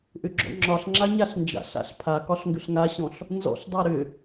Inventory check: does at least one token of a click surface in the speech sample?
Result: yes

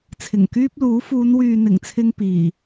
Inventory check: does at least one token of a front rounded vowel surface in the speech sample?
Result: yes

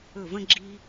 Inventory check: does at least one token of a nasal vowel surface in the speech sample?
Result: yes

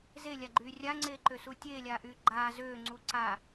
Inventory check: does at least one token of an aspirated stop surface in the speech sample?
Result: no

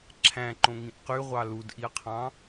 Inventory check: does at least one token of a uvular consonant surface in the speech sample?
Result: yes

